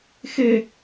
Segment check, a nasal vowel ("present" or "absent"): absent